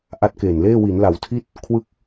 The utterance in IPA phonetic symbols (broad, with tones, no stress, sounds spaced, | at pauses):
ʔ a˦˥ t̚ k eː˨˩ n l eː˥˩ w i˩˦ n l a˩˦ w tʰ i˥˩ t̚ | kʰ w ɯ˥˩ k̚